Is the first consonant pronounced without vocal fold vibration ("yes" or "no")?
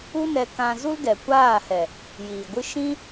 no